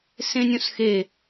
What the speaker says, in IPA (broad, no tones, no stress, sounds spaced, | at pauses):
s ẽ nʲ õ s x e